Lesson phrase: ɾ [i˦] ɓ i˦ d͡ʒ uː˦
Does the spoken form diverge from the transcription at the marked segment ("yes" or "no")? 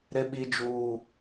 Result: yes